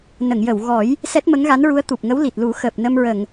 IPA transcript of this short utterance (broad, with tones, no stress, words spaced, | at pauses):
nə˨˩˨ŋjə˨˩˨w ɣɔ˨˩˦j | sɛ˦˥t̚mə˧˥ŋɣa˧˥nɹu˧˥ə̯ t̪u˨˩p̚ŋə˧˥w li˨˩t̚lu˨˩˦ xəː˨˩p̚nə˧mɹə˨˩˨ŋ